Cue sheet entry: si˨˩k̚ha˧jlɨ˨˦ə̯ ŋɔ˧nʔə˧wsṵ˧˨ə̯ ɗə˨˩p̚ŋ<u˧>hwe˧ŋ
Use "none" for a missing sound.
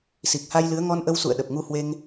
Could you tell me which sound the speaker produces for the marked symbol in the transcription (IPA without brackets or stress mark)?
u˧